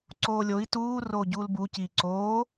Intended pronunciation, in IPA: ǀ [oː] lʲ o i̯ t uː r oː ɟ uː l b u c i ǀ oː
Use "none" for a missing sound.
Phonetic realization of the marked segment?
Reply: oː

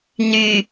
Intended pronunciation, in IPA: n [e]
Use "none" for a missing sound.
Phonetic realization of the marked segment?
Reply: y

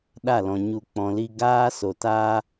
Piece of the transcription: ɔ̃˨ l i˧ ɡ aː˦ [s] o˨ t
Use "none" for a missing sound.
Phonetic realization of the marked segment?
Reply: s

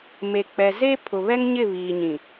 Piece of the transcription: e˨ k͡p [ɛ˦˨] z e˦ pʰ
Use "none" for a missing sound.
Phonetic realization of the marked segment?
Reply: ɛ˨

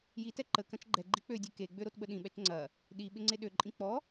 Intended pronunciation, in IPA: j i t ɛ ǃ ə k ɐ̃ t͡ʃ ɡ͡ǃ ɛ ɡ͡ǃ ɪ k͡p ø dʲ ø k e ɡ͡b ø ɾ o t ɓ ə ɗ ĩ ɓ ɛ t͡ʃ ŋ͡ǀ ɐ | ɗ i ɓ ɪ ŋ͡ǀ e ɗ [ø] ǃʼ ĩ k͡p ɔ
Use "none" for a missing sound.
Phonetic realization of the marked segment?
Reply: ø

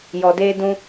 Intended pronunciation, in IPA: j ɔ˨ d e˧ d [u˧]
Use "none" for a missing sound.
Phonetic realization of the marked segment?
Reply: ũ˧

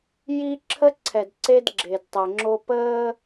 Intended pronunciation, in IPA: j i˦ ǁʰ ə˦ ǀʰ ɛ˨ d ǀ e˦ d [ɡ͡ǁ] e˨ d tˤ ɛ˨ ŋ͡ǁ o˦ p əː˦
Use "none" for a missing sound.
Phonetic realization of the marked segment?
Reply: ɡ͡ǁ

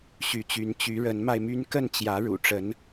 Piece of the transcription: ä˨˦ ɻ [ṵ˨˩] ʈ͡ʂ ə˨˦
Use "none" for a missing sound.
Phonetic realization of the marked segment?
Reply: ṵ˨˩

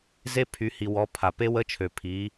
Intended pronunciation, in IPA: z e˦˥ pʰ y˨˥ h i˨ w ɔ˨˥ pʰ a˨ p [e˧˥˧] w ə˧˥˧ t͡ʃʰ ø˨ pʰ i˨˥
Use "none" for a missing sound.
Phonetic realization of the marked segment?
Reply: e˦˥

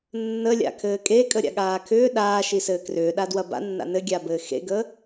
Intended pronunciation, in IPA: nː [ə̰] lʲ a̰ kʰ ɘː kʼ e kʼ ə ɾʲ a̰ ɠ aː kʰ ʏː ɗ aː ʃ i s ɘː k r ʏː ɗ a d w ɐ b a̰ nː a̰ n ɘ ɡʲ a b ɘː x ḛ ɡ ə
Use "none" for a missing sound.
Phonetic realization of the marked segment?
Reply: ə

